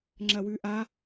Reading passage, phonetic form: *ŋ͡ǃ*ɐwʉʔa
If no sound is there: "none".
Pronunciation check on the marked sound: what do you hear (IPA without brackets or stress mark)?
ŋ͡ǁ